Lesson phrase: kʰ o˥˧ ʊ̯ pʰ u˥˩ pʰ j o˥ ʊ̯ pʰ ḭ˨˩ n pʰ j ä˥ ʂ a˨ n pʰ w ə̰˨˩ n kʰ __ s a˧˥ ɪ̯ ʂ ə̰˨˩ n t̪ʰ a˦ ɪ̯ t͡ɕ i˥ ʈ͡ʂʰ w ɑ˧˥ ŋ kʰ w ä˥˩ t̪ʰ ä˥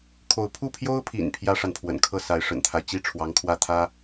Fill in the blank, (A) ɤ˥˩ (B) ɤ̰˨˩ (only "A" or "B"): A